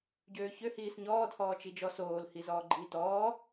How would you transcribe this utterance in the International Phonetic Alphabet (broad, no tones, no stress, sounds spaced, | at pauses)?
ɟ øː ç ø h iː s ɲ ɔː d h ɔː t͡ʃ i d͡ʒ ɔ s oː l h i z ɔː ɡ͡ǃ iː t ɔː